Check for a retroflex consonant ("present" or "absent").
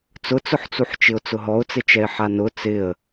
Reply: absent